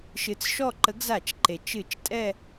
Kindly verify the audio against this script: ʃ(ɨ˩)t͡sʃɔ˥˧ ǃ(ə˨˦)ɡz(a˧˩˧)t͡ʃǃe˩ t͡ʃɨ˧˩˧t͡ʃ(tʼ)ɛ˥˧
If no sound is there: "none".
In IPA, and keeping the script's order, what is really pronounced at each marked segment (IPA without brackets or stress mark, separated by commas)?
ɨ˨˦, ə˨˦, a˧˩˧, tʼ